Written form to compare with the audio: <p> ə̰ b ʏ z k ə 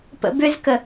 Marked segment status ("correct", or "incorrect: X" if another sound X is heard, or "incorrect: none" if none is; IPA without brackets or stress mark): correct